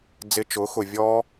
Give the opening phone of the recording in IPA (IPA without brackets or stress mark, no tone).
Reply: d͡z